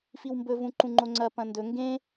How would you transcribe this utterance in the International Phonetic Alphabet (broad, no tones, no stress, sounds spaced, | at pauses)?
f i w m b ɵ v ũ ǃ ũ ŋ͡ǃ o ŋ͡ǀ ɐ p ɐ̃ n d ɵ ŋ ɡ ẽ